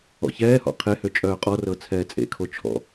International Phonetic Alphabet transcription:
ɔ̰ ç ɛː h ɔ̰ qʰ e h ø t͡ʃʼ œː qʼ ɔ r ɤ t͡sʰ ɛː t͡sʼ ḛ kʰ o t͡ʃʰ ɔ̰

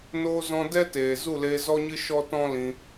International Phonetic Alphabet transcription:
n oː˧ z ɔ̃˧ d ɛ˦ t eː˨ z u˦˨ l eː˧ z ɔ˦ ɲ ɨ˦ ʃ ɔ˦ t ɔ̃˦ l ĩ˧

